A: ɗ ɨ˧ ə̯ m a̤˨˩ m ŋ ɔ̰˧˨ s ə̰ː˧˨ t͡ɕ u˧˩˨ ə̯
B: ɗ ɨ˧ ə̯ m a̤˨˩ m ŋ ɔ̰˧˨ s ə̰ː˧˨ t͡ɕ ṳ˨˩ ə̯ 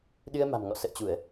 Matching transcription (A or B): A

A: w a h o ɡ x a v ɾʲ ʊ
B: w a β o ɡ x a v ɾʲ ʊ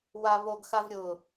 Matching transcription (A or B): B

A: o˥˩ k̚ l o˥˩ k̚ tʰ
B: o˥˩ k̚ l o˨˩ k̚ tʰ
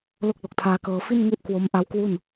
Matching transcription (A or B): B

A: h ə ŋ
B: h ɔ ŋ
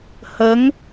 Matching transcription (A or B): A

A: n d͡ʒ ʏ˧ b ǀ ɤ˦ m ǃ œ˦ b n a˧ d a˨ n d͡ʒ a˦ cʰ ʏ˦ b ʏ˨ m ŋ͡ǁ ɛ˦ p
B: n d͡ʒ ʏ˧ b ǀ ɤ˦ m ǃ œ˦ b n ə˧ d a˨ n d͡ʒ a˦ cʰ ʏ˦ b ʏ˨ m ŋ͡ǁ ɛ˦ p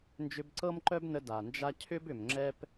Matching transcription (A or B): B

